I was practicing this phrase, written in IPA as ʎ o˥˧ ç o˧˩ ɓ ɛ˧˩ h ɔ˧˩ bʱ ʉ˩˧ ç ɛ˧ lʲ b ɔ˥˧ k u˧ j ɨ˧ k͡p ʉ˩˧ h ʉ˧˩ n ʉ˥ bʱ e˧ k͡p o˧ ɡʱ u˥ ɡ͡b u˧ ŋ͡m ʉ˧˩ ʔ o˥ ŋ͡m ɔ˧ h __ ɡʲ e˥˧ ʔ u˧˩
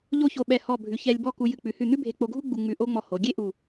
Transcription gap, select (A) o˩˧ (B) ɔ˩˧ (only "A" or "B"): A